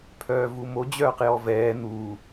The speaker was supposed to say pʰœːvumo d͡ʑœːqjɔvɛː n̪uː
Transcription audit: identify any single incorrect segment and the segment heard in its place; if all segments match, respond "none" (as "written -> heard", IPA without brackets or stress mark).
none